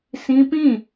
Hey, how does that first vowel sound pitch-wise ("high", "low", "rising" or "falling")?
high